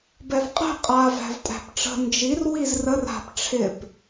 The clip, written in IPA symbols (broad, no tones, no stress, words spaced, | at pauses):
bɛvqʼɛ̤ qʼa væ̤vtʼæ̤pʈ͡ʂə̤ nd͡ʒir wizrər a̤p ʈ͡ʂʰɪp